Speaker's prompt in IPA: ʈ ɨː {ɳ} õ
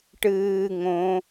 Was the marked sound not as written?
yes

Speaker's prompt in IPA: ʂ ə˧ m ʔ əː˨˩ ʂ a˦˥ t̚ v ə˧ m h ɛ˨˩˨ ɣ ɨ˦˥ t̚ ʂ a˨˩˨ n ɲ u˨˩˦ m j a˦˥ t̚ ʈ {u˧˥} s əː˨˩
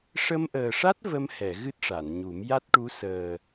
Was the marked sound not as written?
no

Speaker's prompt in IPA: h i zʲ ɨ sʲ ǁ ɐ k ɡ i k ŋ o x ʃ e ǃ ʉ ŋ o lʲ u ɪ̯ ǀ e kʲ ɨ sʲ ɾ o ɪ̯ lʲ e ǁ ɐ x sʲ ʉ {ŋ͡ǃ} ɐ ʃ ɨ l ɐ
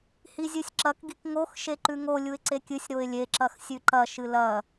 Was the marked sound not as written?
yes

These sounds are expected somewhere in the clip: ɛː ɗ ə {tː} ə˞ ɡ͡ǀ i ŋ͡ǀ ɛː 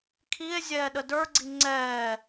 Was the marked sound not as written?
yes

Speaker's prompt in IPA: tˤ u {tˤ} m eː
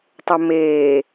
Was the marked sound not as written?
yes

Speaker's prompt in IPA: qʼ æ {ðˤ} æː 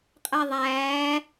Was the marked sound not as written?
no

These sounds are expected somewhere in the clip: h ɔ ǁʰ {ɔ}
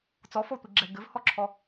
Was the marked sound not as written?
no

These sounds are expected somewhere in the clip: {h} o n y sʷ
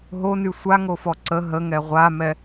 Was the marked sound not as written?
yes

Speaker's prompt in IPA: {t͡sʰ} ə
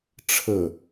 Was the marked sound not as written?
yes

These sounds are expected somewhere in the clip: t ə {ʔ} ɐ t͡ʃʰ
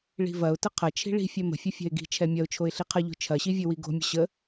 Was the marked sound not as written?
yes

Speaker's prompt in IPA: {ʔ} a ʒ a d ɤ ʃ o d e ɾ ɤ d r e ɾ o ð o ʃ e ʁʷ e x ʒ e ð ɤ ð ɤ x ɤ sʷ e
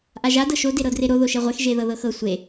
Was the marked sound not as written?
no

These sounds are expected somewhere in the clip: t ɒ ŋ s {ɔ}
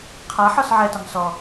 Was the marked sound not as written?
no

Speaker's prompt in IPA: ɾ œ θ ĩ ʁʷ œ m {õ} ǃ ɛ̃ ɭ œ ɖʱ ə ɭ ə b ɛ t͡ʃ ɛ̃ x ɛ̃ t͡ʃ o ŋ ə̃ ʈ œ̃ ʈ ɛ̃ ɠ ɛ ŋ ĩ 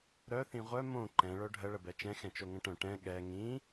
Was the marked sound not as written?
no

